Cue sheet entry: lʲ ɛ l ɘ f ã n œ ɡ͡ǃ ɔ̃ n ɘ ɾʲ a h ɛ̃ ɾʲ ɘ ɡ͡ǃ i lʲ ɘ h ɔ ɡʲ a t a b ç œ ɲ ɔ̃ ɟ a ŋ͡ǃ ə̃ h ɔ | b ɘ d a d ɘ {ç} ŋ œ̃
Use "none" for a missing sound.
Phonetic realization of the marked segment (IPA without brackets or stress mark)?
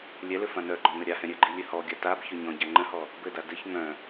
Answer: ç